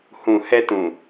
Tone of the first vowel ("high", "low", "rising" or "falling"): low